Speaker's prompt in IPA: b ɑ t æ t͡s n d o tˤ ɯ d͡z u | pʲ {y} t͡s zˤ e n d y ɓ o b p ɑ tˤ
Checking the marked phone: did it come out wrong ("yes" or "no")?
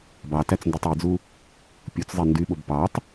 yes